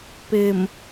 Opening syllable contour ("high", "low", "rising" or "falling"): low